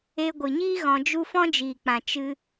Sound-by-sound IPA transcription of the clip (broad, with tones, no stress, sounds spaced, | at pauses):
e˧ ɡʷ ɨ˨ ɲ iː˦ ɣ ɔ̃˧ d͡ʒ u˦ f ɔ̃˦ d͡ʒ iː˨ k͡p ã˨ t͡ʃ ɨ˧